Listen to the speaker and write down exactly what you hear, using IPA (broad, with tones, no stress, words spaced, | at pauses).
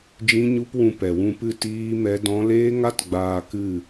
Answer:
d͡ʒĩ˦ɲu˦p wũ˧pɛ˨wũ˧pɨ˦˨ tiː˦mɛ˦dɔ̃˦ leː˦ŋa˦t ɡ͡baː˧ kɨ˦˨